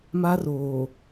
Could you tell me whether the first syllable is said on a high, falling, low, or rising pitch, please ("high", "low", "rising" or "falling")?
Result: high